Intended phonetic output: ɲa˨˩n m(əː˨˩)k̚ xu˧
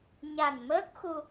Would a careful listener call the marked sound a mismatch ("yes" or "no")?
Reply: yes